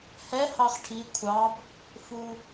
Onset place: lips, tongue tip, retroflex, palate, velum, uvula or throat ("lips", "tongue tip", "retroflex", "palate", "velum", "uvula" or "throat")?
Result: throat